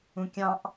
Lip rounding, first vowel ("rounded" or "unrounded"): rounded